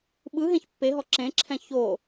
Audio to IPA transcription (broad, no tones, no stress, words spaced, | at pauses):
ɓɯ ɦẽçpːeɦɔ ǁẽǁʰɛ̃ ço